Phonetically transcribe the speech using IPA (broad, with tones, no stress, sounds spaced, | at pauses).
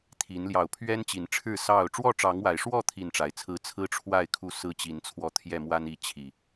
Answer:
t̪ʰ i˨˦ n l j ɑ˨˩ ʊ̯ pʰ ɥ ɛ˦ n t͡ɕ i˨˦ n ʈ͡ʂʰ ɻ̩˥˨ s ɑ˥˨ ʊ̯ ʈ͡ʂ w ɔ˥˨ ʈ͡ʂ ɑ˨˦ ŋ w a˨˩ ɪ̯ ʂ w ɔ˥˨ t̪ʰ i˥˨ n ʈ͡ʂ a˨˦ ɪ̯ t͡sʰ ɹ̩˦ t͡sʰ ɹ̩˦ ʈ͡ʂʰ w a˥˨ ɪ̯ kʰ u˥˨ s ɹ̩˦ t͡ɕ i˨˦ n t͡sʰ w ɔ˧ t̪ʰ j ɛ˥˨ m w a˦ n i˨˦ t͡ɕʰ i˨˩